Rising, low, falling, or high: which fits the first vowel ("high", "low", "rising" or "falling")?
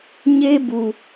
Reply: high